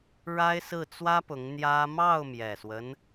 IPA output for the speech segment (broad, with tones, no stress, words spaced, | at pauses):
ɻa˥ɪ̯ sɹ̩˥˩t͡swä˥pʊ˧˥ŋ n̪jä˥ mɑ˥˩ʊ̯mjɛ˨˩swə˦n